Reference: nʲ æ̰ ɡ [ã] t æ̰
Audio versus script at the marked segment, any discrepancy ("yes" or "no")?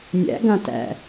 no